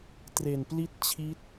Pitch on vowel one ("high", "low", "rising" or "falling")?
low